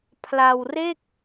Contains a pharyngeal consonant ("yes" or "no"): no